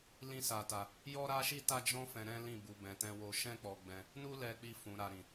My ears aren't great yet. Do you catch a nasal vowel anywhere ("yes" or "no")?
yes